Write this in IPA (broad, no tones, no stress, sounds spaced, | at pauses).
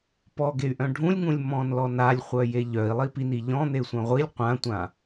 p ɔ ɡ e y̯ ʔ œ̃ ɖʱ ũ lʲ ŋ ũ lʲ m ɔ̃ n l ɔ n a lʲ χʷ œ j e ʎ œ i̯ lˠ i p i n i ʎ ɔ̃ n̪ e sʷ œ̃ ʁʷ i lʲ qʷ ã tʷ ã